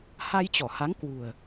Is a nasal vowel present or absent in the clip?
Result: absent